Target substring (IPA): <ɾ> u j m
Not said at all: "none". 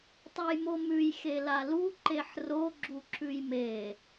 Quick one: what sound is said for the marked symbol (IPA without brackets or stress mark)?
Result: tˤ